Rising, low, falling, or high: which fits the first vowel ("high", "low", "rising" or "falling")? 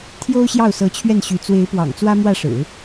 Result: high